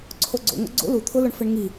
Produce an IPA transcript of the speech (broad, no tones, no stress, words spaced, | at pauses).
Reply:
ǀʰoɡ͡ǀo̰ŋo̰ ɡ͡ǀo̰ lu t̪ʰʊlʊɳ fɪɳŋi